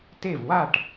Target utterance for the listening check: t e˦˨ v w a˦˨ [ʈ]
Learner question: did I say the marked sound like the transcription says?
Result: yes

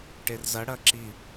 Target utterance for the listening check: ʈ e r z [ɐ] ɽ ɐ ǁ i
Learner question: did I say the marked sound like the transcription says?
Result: yes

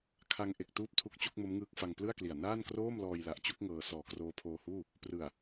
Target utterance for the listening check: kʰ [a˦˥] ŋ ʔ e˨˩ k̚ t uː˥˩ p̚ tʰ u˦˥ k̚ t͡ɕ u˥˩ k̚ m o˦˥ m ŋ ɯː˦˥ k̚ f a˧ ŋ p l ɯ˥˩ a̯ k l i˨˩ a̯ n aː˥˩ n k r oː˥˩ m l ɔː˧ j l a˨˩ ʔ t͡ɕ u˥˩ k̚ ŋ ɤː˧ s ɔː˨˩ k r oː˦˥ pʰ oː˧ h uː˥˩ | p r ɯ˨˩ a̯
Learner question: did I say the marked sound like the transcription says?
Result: no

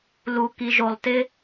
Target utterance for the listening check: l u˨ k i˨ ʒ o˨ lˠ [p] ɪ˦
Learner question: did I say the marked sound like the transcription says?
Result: no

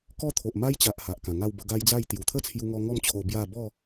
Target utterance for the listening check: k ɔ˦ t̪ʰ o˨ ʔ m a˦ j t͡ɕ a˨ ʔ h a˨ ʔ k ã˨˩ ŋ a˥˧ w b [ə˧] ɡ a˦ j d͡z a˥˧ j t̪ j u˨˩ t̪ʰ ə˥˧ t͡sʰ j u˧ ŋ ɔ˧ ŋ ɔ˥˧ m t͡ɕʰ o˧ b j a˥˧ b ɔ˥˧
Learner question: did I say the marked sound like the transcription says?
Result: yes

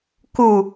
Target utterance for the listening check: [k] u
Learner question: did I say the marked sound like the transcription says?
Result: yes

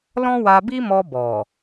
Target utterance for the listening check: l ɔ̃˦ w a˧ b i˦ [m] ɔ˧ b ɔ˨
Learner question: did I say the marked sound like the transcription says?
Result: yes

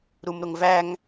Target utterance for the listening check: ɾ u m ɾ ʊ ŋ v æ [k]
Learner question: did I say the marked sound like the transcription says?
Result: no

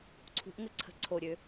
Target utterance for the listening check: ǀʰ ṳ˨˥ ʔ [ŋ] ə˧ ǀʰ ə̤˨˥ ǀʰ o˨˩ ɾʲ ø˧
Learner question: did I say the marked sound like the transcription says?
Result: yes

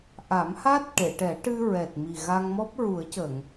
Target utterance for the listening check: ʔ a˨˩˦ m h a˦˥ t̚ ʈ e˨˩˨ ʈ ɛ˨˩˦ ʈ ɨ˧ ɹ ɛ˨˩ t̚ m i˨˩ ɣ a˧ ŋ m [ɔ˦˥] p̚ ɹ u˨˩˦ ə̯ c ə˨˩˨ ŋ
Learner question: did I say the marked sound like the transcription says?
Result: yes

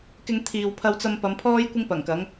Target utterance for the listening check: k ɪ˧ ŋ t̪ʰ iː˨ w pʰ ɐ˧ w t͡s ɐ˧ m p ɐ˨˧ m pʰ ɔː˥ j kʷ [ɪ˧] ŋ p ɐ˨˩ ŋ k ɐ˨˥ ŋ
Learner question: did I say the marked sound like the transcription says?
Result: no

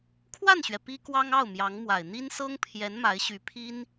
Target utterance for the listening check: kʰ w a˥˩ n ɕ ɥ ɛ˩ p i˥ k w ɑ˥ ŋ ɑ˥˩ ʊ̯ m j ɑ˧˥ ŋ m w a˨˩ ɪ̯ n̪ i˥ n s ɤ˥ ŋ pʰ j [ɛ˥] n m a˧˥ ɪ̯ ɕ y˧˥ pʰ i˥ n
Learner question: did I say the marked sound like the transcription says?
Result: no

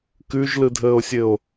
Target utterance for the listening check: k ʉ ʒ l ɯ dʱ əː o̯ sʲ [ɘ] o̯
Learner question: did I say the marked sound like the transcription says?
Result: yes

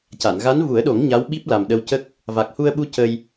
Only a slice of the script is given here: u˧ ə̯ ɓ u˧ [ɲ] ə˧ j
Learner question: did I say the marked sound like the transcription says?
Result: no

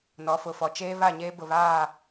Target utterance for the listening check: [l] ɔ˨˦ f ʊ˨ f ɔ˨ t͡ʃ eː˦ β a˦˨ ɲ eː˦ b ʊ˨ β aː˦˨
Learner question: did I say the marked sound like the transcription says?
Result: no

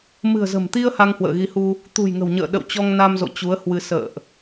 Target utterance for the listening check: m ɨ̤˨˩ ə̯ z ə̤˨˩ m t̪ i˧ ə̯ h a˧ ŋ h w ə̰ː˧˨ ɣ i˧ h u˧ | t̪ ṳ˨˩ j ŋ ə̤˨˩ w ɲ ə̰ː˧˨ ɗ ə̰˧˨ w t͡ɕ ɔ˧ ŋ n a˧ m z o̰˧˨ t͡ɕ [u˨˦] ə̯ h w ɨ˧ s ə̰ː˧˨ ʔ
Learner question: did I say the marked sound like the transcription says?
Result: yes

